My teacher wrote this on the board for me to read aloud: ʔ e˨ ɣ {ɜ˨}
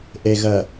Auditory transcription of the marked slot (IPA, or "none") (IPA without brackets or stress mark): ɜ˨